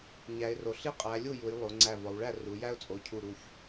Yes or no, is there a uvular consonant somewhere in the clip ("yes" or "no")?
yes